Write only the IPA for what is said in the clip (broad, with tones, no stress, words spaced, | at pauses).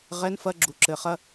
ʁɛ˧˥˧nfɐ˧˥˧ ɡ͡ǁu˨˦ ǁɘ˨˦χɐ˧˥˧